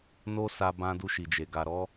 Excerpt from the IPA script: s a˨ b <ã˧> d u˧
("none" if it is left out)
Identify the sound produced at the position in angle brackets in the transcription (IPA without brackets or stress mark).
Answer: ã˧